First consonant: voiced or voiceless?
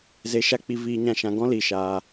voiced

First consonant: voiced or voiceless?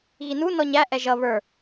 voiced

